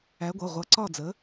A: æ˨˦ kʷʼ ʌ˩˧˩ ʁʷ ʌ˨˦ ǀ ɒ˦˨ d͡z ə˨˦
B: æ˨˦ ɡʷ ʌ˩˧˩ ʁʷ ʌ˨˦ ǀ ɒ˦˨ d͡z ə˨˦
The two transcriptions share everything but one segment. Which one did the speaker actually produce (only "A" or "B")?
B